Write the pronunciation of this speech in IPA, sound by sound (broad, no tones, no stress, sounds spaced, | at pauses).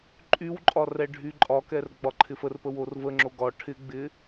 ǃʼ y w ǃʼ ɒ r ɛ ɖʱ y ǃʼ ɒ k ɛ r ɡ͡b ɒ ǃʰ ɪ f ə r p ə w o r v ə ŋ͡ǁ o ɡ ɒ ʈʰ ɪ ɡ͡b ɪ